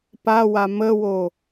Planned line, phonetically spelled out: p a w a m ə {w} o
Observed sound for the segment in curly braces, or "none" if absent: w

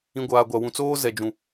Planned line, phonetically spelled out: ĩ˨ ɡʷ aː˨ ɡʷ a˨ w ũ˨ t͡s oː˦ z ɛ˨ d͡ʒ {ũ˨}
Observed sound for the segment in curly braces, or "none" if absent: ũ˨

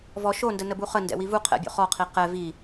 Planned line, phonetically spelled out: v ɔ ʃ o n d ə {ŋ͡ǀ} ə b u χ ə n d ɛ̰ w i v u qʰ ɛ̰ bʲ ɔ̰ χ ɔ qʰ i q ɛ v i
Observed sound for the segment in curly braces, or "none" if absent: n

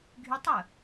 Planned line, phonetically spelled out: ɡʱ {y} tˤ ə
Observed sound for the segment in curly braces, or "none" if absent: y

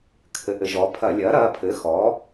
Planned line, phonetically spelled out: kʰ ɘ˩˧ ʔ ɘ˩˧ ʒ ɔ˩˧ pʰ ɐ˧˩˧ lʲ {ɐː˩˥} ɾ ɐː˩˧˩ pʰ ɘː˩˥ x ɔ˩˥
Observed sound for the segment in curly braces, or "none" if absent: ɐː˩˥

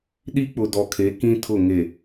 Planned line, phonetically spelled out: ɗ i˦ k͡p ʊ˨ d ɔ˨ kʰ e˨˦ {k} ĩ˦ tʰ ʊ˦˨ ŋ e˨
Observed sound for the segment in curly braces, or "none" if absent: k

